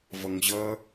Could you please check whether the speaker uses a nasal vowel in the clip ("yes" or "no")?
no